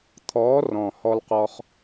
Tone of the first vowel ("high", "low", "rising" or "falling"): rising